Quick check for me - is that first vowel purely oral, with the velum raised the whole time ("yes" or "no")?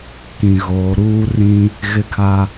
no